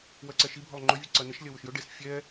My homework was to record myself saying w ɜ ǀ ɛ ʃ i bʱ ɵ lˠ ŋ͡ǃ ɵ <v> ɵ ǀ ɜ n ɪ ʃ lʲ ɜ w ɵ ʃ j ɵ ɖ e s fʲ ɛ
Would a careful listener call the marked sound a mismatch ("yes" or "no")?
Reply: yes